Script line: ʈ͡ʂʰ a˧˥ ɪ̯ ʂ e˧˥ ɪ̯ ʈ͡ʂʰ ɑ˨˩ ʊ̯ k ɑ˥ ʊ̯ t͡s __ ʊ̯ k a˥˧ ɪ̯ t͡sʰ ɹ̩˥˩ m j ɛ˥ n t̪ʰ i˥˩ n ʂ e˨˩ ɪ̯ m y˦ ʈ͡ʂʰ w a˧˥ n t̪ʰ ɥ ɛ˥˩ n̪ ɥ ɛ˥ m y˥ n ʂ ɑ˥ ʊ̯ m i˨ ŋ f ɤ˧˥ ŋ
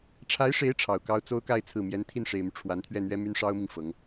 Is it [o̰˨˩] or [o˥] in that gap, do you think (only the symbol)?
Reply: o˥